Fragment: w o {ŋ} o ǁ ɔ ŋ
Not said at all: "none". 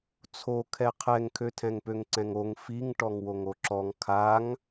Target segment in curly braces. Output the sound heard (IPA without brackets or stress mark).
ŋ